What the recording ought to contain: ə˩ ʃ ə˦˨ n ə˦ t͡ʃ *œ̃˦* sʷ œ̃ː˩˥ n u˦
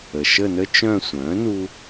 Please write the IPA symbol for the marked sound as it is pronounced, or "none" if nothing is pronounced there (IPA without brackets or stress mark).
œ̃˦˨